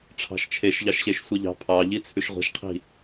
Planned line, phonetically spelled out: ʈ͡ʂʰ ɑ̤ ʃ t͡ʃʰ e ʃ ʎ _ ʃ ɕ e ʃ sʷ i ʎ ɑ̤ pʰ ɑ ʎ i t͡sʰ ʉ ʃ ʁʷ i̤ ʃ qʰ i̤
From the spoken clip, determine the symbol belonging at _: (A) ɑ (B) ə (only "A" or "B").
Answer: A